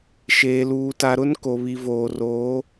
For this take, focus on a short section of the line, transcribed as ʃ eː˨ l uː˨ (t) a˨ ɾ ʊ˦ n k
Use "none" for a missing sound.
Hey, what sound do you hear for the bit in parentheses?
t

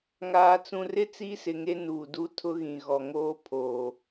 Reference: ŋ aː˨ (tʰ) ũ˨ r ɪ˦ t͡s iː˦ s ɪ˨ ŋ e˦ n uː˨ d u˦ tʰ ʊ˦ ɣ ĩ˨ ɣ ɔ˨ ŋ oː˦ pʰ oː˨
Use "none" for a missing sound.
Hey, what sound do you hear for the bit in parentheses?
t͡s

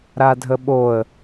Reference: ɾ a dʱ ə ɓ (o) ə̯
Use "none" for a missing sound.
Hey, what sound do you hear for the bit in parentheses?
o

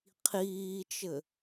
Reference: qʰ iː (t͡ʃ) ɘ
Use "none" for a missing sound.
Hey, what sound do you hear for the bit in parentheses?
t͡ʃ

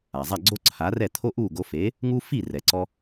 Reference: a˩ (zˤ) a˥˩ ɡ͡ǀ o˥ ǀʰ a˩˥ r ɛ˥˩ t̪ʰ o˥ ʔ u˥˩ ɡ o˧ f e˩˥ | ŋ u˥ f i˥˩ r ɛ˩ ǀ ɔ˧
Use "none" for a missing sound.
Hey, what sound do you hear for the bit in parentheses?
zˤ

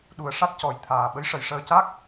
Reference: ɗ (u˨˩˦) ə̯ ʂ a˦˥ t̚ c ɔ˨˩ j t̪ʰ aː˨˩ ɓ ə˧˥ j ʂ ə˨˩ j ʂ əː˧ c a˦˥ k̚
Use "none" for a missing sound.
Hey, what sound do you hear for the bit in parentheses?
u˨˩˦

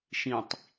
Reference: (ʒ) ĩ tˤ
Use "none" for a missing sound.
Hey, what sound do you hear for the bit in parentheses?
ʃ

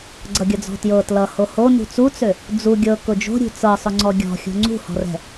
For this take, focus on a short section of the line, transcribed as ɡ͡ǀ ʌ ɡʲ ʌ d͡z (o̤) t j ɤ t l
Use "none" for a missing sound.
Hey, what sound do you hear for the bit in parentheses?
ɔ̤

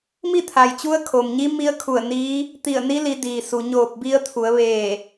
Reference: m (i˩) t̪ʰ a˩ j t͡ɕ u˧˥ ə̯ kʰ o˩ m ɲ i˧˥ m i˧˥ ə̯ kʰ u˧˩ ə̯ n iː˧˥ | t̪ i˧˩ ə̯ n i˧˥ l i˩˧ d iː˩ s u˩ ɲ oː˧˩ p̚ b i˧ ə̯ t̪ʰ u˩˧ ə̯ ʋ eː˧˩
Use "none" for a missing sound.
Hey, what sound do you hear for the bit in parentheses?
i˥˨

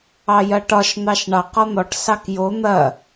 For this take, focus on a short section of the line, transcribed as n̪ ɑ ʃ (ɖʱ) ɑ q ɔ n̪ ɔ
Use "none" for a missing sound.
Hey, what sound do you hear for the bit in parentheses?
ɳ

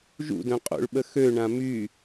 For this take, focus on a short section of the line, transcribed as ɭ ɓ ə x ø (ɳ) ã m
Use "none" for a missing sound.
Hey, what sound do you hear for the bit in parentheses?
ɳ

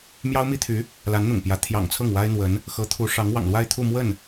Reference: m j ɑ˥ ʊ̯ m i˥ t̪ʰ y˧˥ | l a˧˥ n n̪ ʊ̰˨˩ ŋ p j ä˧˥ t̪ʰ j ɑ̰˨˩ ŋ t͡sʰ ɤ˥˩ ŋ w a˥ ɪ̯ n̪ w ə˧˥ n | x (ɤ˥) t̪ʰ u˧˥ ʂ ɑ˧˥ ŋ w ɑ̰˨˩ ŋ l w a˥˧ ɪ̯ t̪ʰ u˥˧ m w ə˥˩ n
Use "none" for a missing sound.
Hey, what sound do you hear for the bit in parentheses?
ɤ˧˥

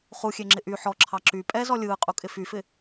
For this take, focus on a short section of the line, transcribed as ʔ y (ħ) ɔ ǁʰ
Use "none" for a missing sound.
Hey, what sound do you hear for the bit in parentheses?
ħ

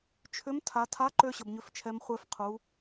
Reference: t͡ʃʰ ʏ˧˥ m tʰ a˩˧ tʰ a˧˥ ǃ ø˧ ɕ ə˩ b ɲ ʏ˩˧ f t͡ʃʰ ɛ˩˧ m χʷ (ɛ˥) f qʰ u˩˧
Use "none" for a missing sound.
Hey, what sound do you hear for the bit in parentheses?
ɛ˧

